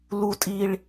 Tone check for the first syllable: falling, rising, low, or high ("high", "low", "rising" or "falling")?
high